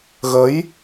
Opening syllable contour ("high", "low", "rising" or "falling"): rising